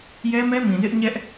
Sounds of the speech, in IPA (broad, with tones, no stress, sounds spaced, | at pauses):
j ɛ˦ m ɛ˦ m ĩ˨ z ɪ˦ ʔ ɲ ɛ˦ ʔ